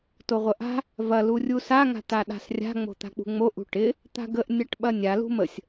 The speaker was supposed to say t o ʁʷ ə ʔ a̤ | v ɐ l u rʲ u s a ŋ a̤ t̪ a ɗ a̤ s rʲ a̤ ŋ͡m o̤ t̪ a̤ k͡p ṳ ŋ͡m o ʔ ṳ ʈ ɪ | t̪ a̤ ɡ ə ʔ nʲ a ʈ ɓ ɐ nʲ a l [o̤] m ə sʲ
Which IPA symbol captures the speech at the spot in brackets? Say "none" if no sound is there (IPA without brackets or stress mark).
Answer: ṳ